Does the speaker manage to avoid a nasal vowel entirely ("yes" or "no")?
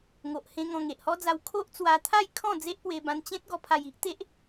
no